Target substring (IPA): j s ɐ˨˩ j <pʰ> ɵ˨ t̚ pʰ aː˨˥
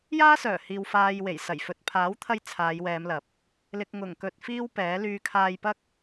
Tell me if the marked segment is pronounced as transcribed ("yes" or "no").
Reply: no